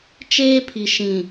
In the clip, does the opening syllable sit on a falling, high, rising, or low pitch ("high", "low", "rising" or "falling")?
high